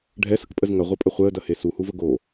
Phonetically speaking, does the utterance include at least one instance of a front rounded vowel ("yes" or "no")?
no